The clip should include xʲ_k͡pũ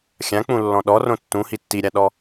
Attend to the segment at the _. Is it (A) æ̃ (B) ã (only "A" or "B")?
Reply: B